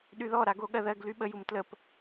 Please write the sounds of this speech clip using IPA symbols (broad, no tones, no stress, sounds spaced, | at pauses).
ɗ y ð ɔ ɾ a ɡ o ɠ ɜ ð ɜ ɡ l y ɓ ə j u m t l ə p